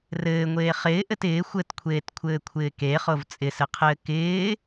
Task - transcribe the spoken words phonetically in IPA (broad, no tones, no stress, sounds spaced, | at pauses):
r ɘː ŋʷ eː χ ɪː ʔ ɘ t ɪː xʷ ɘ t kʷʰ eː t kʷʰ ɘː kʷʰ ɪː k e χ o v t͡sʼ ɪ s ɘ qʰ ɘː k ɪː